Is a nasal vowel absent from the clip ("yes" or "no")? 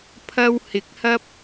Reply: yes